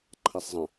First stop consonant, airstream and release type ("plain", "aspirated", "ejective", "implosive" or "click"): click